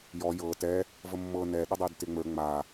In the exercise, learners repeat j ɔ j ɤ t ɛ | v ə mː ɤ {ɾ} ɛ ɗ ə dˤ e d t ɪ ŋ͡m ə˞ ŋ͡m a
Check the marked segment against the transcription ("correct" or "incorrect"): incorrect